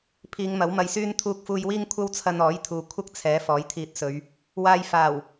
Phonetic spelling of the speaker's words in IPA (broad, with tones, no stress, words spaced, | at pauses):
pʰiː˨˧ŋmɐ˨˥wmɐ˧jsyː˥n t̪ʰuː˧k̚fuː˧jwiː˥ŋ kʷʰɐ˥wt͡sʰɐ˧nɔː˨˥jt̪ʰuː˨ kʷʰɐ˥k̚t͡sʰɛː˨˥ fɔː˨˥jt̪ʰiː˧t̚sɵ˨˧ɥ | waː˧jfaː˨˩w